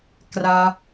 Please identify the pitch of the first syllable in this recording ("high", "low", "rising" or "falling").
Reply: high